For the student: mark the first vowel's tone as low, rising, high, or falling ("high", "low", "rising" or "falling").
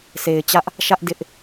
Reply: low